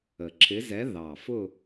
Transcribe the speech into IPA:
ə˨˩ ǁʰ ɪ˧˥ z ɛ˧˥ ð ɑ˨˩ f ʊ˥˧

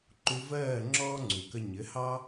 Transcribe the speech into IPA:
ǃ u˧ v ɜː˦˨ ŋ͡ǁ ɔː˦ ŋ͡ǀ u˨ k ə˧ ɲ ɘ˨˦ h ɑ˦

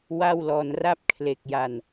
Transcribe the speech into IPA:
w a˥˩ w l ɔː˧ n r a˥˩ p̚ kʰ l e˨˩ k̚ j a˨˩ n

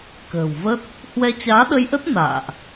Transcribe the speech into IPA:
k ə̤ː˨˩ w v ə˦˥ t̚ | h w ɛ˧ t͡ɕ aː˨˦ ɗ ə˧ j ʔ ə˦˥ t̚ n a̰ː˧˨ ʔ

